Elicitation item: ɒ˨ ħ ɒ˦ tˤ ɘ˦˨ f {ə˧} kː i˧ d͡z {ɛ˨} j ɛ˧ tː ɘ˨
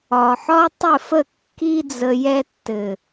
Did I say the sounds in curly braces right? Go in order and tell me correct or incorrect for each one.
incorrect, incorrect

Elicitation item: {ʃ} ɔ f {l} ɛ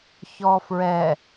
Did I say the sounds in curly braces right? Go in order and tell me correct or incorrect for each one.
incorrect, incorrect

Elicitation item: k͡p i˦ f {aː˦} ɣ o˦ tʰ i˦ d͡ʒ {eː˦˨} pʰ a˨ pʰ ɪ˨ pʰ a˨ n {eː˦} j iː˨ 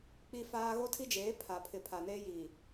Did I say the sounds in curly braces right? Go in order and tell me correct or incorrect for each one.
correct, incorrect, correct

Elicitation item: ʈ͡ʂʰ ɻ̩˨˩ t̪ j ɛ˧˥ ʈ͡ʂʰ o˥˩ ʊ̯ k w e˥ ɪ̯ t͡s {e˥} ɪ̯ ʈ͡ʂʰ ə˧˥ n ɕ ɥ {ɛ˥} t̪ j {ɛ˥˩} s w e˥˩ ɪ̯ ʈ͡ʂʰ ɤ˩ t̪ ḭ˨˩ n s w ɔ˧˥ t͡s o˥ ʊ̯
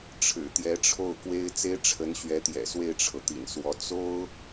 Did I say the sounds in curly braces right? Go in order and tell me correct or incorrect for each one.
correct, incorrect, incorrect

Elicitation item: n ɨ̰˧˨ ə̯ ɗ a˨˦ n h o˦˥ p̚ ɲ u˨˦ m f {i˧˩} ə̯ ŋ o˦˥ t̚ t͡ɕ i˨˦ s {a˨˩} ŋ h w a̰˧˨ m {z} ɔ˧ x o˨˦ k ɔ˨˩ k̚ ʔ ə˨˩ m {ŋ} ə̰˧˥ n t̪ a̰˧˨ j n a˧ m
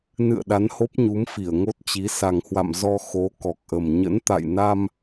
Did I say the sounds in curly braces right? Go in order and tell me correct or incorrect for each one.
correct, correct, correct, incorrect

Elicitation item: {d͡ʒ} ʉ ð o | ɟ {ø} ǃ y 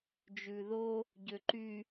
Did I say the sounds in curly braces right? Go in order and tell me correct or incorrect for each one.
correct, correct

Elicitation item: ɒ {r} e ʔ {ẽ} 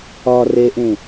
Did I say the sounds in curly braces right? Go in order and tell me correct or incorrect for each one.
correct, correct

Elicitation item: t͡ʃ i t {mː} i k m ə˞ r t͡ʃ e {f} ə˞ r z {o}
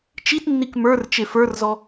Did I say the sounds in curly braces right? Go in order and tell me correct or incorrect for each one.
incorrect, correct, incorrect

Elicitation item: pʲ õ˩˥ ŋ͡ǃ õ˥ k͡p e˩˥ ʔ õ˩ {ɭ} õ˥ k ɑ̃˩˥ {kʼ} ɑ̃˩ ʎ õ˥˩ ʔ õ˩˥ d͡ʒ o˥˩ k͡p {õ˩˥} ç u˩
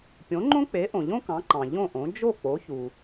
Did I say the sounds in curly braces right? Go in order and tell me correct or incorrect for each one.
incorrect, incorrect, incorrect

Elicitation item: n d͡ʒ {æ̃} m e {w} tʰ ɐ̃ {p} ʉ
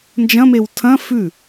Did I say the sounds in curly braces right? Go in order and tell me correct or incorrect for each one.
incorrect, correct, incorrect

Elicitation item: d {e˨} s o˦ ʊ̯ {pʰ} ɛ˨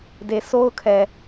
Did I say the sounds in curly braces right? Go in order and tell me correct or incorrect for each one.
correct, incorrect

